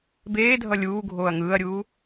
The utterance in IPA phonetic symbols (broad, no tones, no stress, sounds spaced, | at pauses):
b eː dʱ ʌ lʲ uː ɡʱ oː ɐ̯ ŋ ɯː ɐ̯ ɾʲ uː